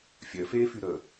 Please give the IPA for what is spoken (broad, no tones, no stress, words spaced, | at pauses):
fʲœfeːfy ɾə